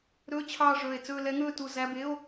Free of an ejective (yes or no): yes